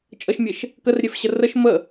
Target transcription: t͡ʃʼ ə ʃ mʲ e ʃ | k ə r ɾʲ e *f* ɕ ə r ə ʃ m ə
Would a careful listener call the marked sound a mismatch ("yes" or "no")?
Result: no